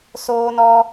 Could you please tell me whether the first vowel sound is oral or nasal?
oral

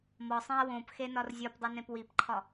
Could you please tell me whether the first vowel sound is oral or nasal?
oral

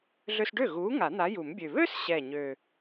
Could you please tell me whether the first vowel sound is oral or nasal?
oral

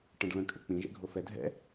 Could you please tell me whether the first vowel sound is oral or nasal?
nasal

